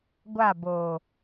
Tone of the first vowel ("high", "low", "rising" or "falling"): falling